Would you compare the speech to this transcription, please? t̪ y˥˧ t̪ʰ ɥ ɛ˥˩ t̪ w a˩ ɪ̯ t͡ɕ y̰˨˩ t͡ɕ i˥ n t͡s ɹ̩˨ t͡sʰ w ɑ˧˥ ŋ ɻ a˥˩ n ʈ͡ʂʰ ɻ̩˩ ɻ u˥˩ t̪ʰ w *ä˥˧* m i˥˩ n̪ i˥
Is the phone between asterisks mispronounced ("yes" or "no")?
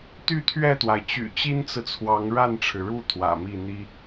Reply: yes